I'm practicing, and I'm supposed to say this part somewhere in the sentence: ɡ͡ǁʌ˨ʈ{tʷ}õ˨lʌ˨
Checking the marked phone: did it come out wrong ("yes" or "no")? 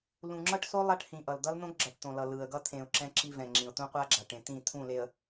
yes